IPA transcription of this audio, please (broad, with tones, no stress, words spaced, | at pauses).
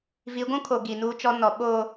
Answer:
vi˨˦ɡʷũ˦kʰo˨ ɡi˨nuː˦t͡ʃɔ˦nɔ˨˦ ɓo˦